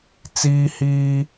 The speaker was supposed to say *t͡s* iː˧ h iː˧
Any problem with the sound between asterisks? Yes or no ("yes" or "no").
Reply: no